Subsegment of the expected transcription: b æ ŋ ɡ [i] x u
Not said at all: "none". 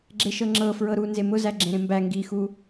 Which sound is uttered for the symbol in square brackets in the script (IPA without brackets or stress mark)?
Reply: i